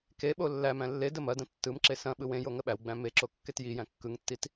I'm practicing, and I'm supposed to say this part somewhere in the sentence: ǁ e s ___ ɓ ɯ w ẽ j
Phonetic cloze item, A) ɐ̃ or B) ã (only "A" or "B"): A